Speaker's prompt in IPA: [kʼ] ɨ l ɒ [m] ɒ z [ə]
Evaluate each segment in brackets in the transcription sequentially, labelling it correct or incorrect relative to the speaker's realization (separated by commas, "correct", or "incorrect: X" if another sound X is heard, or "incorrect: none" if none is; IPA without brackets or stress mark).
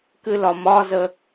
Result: incorrect: k, correct, correct